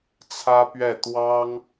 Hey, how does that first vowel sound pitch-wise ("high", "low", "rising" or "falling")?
high